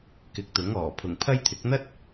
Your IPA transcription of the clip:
k ɪ˨˥ k̚ t̪ ʊ˨˥ ŋ ɔː˨˩ pʰ ʊ˨˩ ŋ pʰ ɐ˥ j t̪ʰ ɪ˨˥ k̚ n̪ ɐ˥ t̚

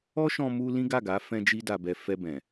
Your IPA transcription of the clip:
ɔ˦ ʃ ɔ̃˧ m u˧ l ĩ˦ ɡ a˦˨ ɡ a˨˦ f ɛ̃˦ d͡ʒ i˦ d a˧ b ɛ˧ f ɛ˧ b ɛ̃˨

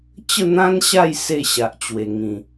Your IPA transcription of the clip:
t͡ɕ ə˥˧ n̪ ã˦ n ɕ a˥˧ j s e˥˧ ɕ a˨ ʔ t͡ɕ w e˨˩ ŋ ĩ˨˩

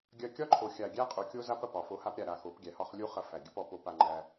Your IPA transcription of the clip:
ɡʲ ɐ˧ kʲ ɒ˦ ǃʰ o˨ xʲ a˨ ɡʲ æ˦ qʼ u˨ kʲ o˦ z a˦ p ɐ˨ p ɒ˨ f o˧ h a˦ p ɾʲ a˧ ɾ a˨ x o˨˦ p ɡʲ æ˨ h ɒ˦ χ lʲ u˦ χ ɐ˧ f æ˨ ɡʲ ə˦ p ɔ˧ p o˦ p a˧ ŋ͡ǃ æ˧

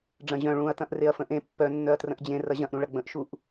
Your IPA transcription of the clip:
ɖ͡ʐ ɐ̃ ʑ œ̃ ɭ ũ ɐ̯ t ɐ̃ ʔ r e ɐ̯ f ə̃ ʔ ẽ pː œ nː œ ɐ̯ t r ə̃ ʔ d͡ʑ ẽ r ɐ ʑ ɐ̃ ʔ ɾ ũ ɭ ɐ ɡ͡b ə̃ ʔ ʃ u ʔ

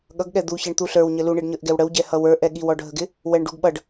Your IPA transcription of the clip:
ɠ ʌ ɡ ɠ ɛ d̪ u ç ɛ ɳ t̪ u ɬ ə˞ w ɲ ə l u ɳ i ɖ ɲ ə˞ ʔ ɡ ɛ w ɽ ə w ɟ ɛ h ʌ w ə˞ ʔ ɛ ɠ i w ɔ ɖʱ ə ɡ ɪ | w ɛ ɳ ɖ u ɡ ɓ ʌ ɖ

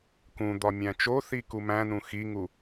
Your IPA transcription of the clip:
k ũ d̪ ɒ mʲ æ̃ t͡ʃ o θ i k u m æ̃ n ũ x i ŋ u

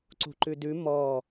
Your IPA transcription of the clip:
ǀ ṳ ǃ ʉ d ʉ m ɔ

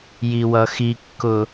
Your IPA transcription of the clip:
j i w ʌ x i kː ʊ

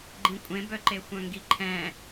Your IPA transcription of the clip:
ɡ͡ǃ ĩ kʷʼ ẽ b œ ǃ e xʷ œ̃ ŋ ɡ i ǃʰ ɛ̃

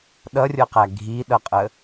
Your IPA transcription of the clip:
ɗ ʌ rʲ ɤ q æ ɡʱ i ɗ ʌ qʼ ə

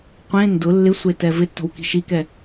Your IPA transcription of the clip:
qʷ ẽ n d ʊ lː ɪ sʷ e t ɛ v ɪ tː ɔ̤ w k i̤ ʃ i k ɛ

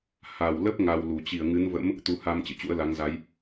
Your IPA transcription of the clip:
h a˨˩ w l ə˦˥ p̚ ŋ a˧ w l u˨˩ t͡ɕ i˧˩ ə̯ ŋ ɨ˨˦ n v ə̰˧˥ m | t̪ u˧ h a˧ m t͡ɕ ɨ̰˧˨ t͡ɕ ṵ˧˥ ə̯ l a˨˦ ŋ z a˨˦ j

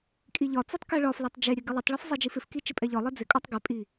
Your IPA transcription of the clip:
kʼ i ʎ ɒ t͡s i tˤ k ɛ ɭ ɒ f l ɛ tˤ d͡ʒ e ɾʲ ɛ ɡ ɪ lˠ e tˤ ɭ ɒ f zˤ i d͡ʒ i f ɪ f k i t͡ʃ ɪ pʼ ɛ ʎ ɒ lˠ ɛ d͡z ɪ kʼ ɒ tˤ ɡ e pʼ i

